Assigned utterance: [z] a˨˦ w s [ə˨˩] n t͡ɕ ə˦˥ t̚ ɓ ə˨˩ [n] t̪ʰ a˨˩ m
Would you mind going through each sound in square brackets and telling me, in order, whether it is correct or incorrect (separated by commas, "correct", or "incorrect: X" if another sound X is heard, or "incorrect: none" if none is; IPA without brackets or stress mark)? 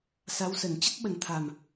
incorrect: s, correct, correct